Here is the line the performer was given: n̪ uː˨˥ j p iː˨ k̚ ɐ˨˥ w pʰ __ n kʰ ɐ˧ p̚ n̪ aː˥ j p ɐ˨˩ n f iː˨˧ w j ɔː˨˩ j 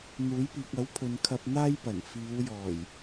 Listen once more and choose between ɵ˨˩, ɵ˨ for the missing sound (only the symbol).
ɵ˨